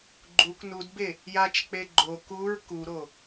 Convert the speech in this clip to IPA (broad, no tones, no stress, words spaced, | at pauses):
ɡ͡ǃuk nudbe | jat͡ʃk͡pe ɡ͡ǃo kuɹ kuɾo